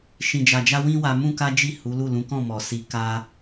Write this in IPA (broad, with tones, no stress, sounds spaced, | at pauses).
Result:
ʃ ĩ˨ d͡ʒ a˨ d͡ʒ a˧ w ĩ˦ w a˧ m ũ˦ k a˦ d͡ʒ i˦˨ h u˨˦ l u˦˨ l ũ˨˦ k ɔ̃˦˨ m ɔ˨ s i˧ k a˦